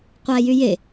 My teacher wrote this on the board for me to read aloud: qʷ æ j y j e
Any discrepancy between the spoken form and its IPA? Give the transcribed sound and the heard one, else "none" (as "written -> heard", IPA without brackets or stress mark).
none